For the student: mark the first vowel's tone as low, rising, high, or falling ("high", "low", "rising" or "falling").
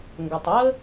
low